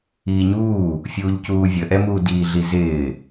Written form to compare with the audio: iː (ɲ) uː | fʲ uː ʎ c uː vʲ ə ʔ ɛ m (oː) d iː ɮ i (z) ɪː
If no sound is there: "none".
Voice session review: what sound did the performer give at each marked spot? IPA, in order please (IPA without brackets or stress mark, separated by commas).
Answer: ɲ, uː, z